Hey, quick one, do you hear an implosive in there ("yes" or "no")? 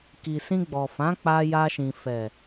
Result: no